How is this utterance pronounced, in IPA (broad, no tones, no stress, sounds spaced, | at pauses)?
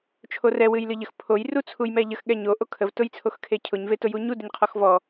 t͡ʃʰ o r ɛ w ɨ j l ɨ ʎ ə x pʰ o j r u t͡sʰ u j m ɛ ʎ ə x ɠ ɛ ɲ o ʔ o kʰ ə v t ʊ j t͡sʰ o x kʰ e cʰ ʊ ɲ v e t ʊ j u ɲ u d ə ɲ qʰ ɔ x v ɔ